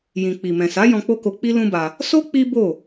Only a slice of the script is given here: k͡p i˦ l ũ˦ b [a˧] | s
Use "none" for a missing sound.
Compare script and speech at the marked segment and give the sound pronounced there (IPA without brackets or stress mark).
a˧